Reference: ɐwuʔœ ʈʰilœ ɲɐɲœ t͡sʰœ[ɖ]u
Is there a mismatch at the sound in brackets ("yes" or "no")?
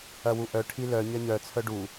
no